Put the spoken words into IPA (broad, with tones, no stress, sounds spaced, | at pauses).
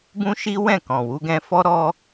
b ũ˦ ʃ i˦ w ɛ̃˦˨ k ɔ̃˨ w u˧ ɡ ɛ̃˧ f ɔ˦ ɾ ɔ˦